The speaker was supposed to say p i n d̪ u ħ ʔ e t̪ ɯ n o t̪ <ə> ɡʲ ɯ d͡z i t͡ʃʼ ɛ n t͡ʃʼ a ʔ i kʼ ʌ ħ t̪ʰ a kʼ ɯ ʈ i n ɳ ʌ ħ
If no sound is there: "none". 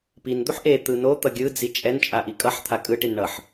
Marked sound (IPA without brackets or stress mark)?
ʌ